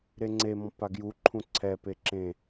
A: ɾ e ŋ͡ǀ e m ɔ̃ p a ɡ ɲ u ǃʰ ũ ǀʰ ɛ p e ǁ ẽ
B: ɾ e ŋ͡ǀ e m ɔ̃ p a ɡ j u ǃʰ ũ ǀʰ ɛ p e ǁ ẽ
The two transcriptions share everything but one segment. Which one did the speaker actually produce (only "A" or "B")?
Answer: B